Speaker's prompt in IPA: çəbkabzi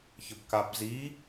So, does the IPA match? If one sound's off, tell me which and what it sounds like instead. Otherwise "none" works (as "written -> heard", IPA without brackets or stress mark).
none